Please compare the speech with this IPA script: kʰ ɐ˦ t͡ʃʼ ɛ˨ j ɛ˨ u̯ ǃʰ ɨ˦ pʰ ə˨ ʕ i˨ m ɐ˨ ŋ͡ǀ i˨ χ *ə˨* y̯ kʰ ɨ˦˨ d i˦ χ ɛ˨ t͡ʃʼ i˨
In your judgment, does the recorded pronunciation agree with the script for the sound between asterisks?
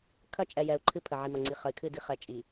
yes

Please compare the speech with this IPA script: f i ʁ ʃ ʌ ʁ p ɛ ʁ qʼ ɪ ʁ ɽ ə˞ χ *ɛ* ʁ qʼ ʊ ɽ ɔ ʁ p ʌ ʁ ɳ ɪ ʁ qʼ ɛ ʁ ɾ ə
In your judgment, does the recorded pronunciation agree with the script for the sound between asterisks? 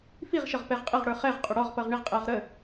yes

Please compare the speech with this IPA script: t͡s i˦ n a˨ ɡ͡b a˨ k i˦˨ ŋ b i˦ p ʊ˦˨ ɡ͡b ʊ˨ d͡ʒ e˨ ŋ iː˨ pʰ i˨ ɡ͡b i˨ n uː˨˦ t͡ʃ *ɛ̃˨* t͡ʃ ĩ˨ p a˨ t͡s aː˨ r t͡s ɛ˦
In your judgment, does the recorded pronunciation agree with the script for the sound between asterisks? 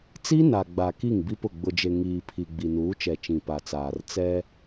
no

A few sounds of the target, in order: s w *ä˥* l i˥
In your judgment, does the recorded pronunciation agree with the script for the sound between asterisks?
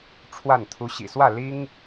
no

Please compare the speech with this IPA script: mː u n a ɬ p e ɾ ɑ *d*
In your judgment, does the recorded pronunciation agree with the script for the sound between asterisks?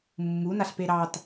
no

